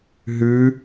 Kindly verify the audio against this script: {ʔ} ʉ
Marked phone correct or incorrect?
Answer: incorrect